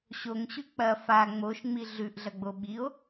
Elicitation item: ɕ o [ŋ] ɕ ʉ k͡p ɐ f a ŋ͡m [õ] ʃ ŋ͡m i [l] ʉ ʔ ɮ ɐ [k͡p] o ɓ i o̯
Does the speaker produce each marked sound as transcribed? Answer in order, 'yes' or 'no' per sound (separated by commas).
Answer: yes, no, no, no